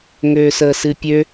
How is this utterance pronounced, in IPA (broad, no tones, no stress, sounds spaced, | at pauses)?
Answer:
ŋ øː s əː s ɨ pʲ ø